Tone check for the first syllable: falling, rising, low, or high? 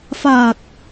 low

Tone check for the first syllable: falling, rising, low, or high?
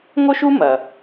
high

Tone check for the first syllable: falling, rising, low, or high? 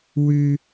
high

